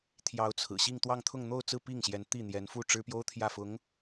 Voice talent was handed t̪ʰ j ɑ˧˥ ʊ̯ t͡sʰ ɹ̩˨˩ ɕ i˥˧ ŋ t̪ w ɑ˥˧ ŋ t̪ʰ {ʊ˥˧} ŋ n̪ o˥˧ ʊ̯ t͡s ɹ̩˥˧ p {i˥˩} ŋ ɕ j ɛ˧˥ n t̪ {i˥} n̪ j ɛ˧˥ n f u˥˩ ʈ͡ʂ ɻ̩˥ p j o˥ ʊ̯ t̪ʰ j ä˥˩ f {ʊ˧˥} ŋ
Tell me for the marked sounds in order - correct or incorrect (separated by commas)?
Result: correct, correct, incorrect, correct